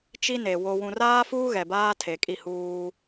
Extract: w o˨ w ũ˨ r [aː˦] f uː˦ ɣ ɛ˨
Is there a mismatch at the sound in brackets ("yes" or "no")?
no